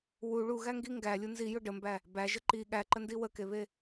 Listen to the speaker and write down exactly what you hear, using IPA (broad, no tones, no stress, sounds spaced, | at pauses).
w u ɭ u ɣ æ ŋ ɡ i ŋ ɡ æ lʲ u n z i j ʊ ɖ ə m b æ | b æ ʒ ə ǃ i ɠ æ ǃ ə n d i w ə k e β e